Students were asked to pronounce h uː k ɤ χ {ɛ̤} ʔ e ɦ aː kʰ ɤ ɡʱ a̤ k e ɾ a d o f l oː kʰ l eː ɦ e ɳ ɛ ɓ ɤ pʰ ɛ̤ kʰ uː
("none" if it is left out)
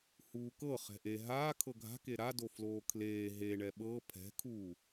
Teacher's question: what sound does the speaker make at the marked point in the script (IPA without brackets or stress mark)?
ɛ̤